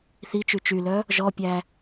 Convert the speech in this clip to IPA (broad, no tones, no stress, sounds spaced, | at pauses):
θ i t͡ʃ y t͡ʃ y l œ | ʒ ɔ pʲ æ